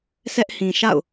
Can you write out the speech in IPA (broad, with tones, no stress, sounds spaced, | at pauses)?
s ɛ˦ ʔ h ĩ˨ ʃ a̰˦˨ ʊ̯